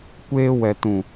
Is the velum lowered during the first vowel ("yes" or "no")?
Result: no